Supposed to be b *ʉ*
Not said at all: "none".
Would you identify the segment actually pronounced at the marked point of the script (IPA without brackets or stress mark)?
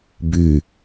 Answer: ʉ